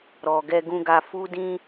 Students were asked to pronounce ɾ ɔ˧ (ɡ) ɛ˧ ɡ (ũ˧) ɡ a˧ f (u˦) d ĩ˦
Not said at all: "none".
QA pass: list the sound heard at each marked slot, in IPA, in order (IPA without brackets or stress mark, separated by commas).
ɡ, ũ˧, u˦